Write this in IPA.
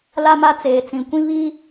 la˦ma˦ t͡seː˨t͡sĩ˨kʷĩ˦ βi˦

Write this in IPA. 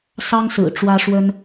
sɑ˥ŋsɹ̩˨˩ ʈ͡ʂwä˥ʂwə˥n

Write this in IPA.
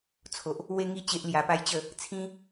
t͡sʰo˨ʔ | we˦ŋi˥˧ t͡ɕe˦ʔlja˧pa˥˧jt͡ɕə˥˧ | t͡sʰĩ˦

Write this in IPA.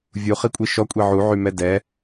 vʲuχikʷʼi ʃɔkʷʼi ʕuʕymɛ dɛ

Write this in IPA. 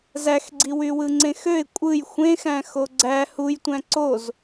zæxɡ͡ǀiwywɯ ŋ͡ǀẽxøɪ̯ kʷʼɯj xʷẽxæ̃ xoɡ͡ǀæ hujtʷæ̃ ǀoz

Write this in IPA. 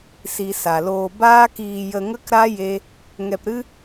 si˨ sa˨loː˧ baː˦kiː˧ jə˧ŋə˦kɾa˦ je˦ | ŋɛ˧pɾɨ˦

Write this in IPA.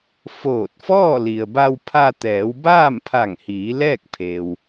foː˧˩t̚fɔː˥˨ li˩ə̯ba˧wpʰa˧ t̪ɛː˩˧wbaː˥˨mpʰa˧˩ŋhiː˩˧ lɛː˥˨k̚pʰeː˩w

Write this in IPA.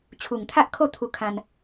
t͡ɕʰu˨˩ŋt̪ʰa˦ʔkʰo˥˧ t̪ʰu˧ kʰã˧n

